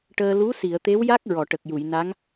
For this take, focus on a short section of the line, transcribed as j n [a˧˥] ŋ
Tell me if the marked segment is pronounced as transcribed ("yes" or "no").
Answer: yes